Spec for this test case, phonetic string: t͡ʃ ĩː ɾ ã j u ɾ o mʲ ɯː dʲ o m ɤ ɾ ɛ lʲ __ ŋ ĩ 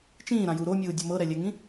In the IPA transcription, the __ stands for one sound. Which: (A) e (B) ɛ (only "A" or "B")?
B